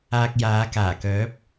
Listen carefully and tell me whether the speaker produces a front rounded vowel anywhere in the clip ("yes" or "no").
yes